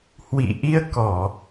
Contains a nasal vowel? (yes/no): no